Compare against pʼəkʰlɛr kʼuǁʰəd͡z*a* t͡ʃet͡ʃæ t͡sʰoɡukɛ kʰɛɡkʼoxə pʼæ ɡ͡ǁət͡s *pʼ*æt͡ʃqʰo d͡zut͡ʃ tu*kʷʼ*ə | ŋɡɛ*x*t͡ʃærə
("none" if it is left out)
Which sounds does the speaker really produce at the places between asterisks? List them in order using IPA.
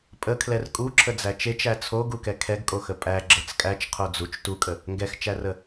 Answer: æ, kʼ, kʼ, x

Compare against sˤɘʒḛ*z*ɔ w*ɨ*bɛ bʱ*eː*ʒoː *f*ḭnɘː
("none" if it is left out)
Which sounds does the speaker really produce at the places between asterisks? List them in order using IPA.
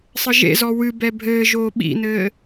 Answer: z, ɨ, ɘː, ɓ

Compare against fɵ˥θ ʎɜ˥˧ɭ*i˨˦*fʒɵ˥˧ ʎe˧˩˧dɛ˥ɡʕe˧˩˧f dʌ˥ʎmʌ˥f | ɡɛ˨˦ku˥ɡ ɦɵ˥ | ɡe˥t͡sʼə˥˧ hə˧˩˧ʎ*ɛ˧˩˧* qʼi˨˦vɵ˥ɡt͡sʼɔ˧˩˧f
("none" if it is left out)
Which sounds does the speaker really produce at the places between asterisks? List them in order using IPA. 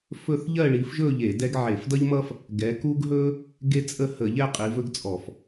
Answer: i˨˦, ɛ˥˧

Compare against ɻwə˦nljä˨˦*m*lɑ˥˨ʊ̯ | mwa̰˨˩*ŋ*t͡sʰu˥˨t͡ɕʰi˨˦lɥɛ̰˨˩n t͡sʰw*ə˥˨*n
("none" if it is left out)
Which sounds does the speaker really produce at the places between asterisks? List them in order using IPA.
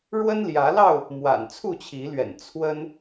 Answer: none, n, ə˦

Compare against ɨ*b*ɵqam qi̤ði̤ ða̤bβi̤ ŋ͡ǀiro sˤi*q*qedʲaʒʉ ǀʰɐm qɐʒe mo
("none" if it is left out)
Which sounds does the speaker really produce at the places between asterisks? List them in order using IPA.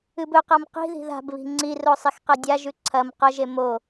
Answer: b, x

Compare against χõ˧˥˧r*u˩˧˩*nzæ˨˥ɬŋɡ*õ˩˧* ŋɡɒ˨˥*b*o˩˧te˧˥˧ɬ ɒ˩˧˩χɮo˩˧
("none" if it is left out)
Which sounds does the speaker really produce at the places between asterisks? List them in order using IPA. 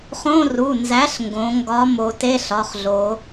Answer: u˩˧˩, õ˩˧, m

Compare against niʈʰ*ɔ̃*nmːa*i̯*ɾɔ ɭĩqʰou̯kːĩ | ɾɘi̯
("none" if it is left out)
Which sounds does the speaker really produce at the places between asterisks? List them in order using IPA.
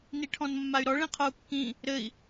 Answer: ɔ̃, y̯

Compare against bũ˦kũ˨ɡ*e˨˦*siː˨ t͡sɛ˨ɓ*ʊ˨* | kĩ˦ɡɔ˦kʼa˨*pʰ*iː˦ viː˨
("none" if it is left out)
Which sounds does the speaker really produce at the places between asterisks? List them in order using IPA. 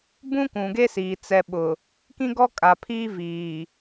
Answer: e˦, ʊ˨, pʰ

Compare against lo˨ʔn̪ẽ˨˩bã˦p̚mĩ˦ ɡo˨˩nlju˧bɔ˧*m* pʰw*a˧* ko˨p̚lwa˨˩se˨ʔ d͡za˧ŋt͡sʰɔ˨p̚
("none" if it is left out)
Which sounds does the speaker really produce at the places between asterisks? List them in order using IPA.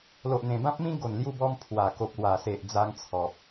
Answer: m, a˨˩

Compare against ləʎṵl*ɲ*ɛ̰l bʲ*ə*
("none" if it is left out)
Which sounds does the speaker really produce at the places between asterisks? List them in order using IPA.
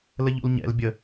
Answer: ɲ, ə

